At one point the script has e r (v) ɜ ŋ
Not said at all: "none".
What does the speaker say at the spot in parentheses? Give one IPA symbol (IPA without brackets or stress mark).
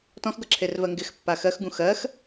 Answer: v